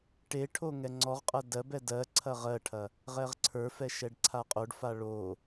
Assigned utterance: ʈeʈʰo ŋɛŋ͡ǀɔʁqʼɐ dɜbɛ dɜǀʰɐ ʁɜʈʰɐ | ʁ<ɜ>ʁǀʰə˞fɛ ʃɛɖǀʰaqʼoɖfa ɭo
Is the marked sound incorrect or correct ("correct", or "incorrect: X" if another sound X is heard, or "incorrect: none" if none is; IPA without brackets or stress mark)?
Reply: incorrect: ɛ